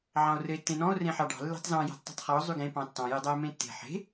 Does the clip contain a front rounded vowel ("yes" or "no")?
yes